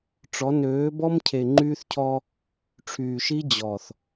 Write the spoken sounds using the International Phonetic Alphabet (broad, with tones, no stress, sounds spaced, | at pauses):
ʈ͡ʂ ɔ˨˦ n øː˨˦ b ɔ˦ m cʰ e˨ ŋ͡ǃ yː˦ θ cʰ ɔ˦ | ʈ͡ʂʰ yː˨ ʃ i˦ d͡ʑ ɔ˨ θ